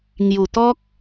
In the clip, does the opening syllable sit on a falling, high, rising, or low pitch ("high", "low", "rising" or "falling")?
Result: low